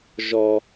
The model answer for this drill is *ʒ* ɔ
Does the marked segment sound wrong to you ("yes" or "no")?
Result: no